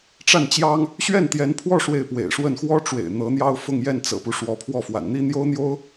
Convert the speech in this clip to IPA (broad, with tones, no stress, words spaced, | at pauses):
ʈ͡ʂa˥˩nt͡ɕjɑ˥ŋ | ɕɥɛ˥˩nt̪jɛ˧˥npʰwɔ˥˧ ʂwe˥˩ɪ̯pwḛ˨˩ɪ̯ʂwə˥˩n xwɔ˥ʈ͡ʂwḛ˨˩ɪ̯ n̪ɤ˧˥n̪jɑ˥ʊ̯fʊ˥˧ŋ jɛ˥˩nt͡sɤ̰˨˩pu˦ ʂwɔ˧˥pʰwɔ˥˩ fwa̰˨˩nn̪i˥n̪jo˥ʊ̯ n̪jo˥ʊ̯